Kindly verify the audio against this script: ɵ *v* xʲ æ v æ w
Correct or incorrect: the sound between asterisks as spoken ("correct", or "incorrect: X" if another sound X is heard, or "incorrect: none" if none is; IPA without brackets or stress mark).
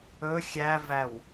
incorrect: none